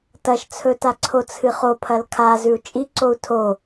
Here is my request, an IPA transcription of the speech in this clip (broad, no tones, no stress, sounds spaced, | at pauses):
t ɐ ʃ t͡sʰ ɵ t a ǀʰ o t͡sʰ ɨ χ o pʰ ɐ l kʰ a z ʉ u̯ t͡ʃʼ i ǀ o u̯ tʰ o